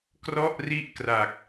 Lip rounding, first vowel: rounded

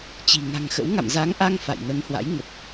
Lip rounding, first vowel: unrounded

